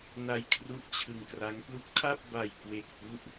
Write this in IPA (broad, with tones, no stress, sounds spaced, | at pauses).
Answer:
n a˧ j kʰ r u˦˥ ʔ t͡ɕʰ ɯ˧ ŋ k r a˦˥ ŋ p l u˦˥ k̚ tʰ a˥˩ p̚ b a˨˩ j k w e˨˩ k̚ p u˦˥ ʔ